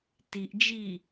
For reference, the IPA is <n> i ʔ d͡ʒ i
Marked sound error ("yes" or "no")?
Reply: yes